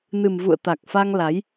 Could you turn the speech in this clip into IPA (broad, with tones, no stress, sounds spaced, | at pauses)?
n ɨ˨˩ m v ṵ˧˨ ə̯ t̪ a˨˩ k̚ f a˧ ŋ l a˨˦ j